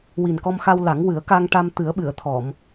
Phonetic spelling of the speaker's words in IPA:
wi˨˩nkɔ˧mxa˧w la˨˩˦ŋwɨ˨˩˦ə̯ka˧ŋ ʈa˧m t̪ɨ˨˩˦ə̯ɓɨ˨˩˨ə̯t̪ʰɔ˨˩˨m

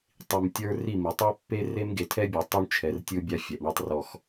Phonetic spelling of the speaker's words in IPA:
tˤi˨mtʲə˞˦ ri˦˨mɯ˨ tˤɛ˦pːe˦ re˦mɡe˨tʰɛ˦bʲɔ˨ tˤu˦ɳt͡ʃʰɛ˨r tʲɯ˦bʲa˦fʲɛ˨ʔ ɳɤ˦tˤrɔ˦˨x

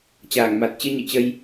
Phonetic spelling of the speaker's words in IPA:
t͡ɕaː˧˩ŋma˨˩t̚ t͡ɕɨ˧ɲɨ̰˧˨t͡ɕə˧j

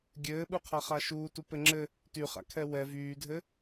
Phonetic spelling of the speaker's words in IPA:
ɡʲɘːɓuqʰa χaʃuː tupɘŋ͡ǁɘ | ty χa̰kʰɛwɛ vyːdʱɘ

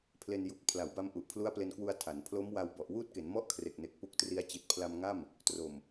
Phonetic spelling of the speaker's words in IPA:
pʰle˧nju˨˩k̚ pʰla˩˦wba˧mʔu˨˩ʔ pʰlu˦˥a̯ple˧nkwu˧a̯ tʰa˩˦n pʰlo˦˥mwa˧w bɔ˨˩ʔwuː˥˩t̚ke˩˦n mɔ˥˩ʔkʰre˨˩k̚ne˨˩k̚ pu˦˥k̚tri˧a̯ t͡ɕi˨˩t̚pʰla˧mŋa˥˩m | tro˨˩m

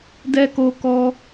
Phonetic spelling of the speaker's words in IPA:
dɛ˧ ko˦kɔ˦

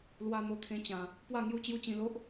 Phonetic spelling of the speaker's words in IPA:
lwa˧n̪o˨˩t̪ʰẽ˧t͡ɕã˨˩ | pwa˥˧ŋju˥˧t͡ɕju˥˧t͡ɕĩ˧ lo˦ʔ

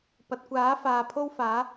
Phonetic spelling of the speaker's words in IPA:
pɐ˨t̚kʷaː˨˥ faː˨pʰo˥wfaː˨˥

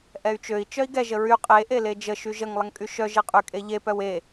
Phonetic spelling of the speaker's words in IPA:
ʔɛy̯t͡ʃøi̯ t͡ʃœi̯ɡɛ ʒəɹy qʼe ʔeled͡ʒə ʃyʒəŋ lˠəŋkʼyʃœ ʒeqʼy kʼeʎe pœwe

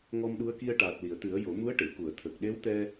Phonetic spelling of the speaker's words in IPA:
ŋɔ˧mɗu˧˥ə̯ki˧ə̯ ʈaː˨˩t̚li˨˩˨ə̯t̪ɨ˨˩˦ə̯ jo˨˩˦mu˧˥ə̯ʈe˨˩˨ ku˨˩˨ə̯t̪ʰə˨˩k̚ ɗe˧˥wt̪ɛ˧

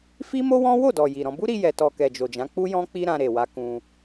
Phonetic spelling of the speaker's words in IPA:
fi˦mo˦wɔ̃˦ wo˦˨dɔ˨ ji˨ɾɔ̃˧ bu˦ɾi˧jɛ˨tɔ˨ kɛ˨d͡ʒo˨d͡ʒã˨˦ k͡pu˦jɔ̃˦ k͡pi˦ɾã˧ɾe˨wa˧ kũ˧

